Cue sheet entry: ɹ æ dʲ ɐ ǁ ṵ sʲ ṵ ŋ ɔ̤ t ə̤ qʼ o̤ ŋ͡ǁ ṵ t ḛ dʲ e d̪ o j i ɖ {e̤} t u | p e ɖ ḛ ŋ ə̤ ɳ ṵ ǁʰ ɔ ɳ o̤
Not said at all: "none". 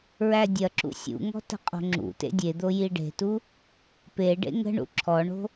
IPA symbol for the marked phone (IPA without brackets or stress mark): e̤